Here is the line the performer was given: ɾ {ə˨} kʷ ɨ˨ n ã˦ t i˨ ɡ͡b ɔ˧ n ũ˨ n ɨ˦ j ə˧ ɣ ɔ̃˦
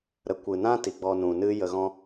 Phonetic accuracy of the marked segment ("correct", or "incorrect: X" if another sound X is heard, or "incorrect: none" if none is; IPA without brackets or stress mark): correct